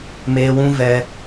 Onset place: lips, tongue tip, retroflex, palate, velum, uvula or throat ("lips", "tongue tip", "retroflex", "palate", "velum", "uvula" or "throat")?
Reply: lips